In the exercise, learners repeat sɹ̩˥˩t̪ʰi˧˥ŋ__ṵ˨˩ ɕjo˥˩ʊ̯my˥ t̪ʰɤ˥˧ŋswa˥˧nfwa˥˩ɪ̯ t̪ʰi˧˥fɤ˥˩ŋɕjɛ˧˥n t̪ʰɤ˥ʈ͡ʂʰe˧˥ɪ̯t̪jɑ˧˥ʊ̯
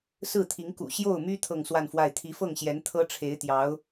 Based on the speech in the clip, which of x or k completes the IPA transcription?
k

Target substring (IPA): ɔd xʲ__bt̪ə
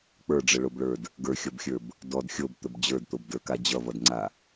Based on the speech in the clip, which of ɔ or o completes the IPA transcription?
o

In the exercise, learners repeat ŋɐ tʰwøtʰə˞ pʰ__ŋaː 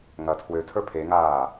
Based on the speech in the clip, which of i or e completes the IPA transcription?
e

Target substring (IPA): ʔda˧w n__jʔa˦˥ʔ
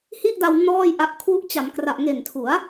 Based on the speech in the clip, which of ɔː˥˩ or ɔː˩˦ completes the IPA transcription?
ɔː˥˩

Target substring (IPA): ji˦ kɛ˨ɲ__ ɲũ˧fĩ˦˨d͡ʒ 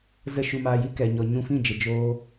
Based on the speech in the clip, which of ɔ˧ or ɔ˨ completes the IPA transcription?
ɔ˨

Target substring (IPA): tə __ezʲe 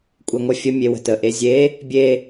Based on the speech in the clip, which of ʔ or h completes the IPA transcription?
ʔ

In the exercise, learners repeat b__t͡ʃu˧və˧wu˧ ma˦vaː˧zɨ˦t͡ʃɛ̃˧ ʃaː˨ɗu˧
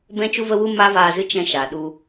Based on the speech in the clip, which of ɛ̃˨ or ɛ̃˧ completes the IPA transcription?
ɛ̃˧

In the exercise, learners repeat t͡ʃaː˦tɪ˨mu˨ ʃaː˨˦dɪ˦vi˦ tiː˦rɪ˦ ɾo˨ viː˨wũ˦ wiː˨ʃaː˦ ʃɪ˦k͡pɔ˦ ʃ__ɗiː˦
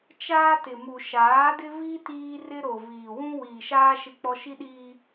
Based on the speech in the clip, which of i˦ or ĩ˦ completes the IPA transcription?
i˦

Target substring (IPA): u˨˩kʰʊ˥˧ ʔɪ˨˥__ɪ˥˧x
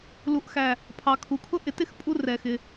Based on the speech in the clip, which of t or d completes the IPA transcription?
t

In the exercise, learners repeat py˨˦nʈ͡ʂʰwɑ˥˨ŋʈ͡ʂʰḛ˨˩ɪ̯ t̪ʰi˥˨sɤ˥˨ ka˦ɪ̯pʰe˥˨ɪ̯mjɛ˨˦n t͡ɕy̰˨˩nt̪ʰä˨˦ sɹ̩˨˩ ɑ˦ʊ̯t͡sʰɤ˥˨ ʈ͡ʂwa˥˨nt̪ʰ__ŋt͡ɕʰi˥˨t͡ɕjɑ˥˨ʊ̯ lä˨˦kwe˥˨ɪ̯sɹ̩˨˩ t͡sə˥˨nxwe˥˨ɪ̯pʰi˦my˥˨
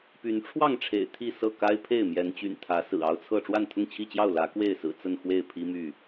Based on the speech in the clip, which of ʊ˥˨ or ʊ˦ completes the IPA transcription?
ʊ˥˨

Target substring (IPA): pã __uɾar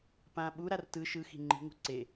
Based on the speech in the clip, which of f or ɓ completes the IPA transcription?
ɓ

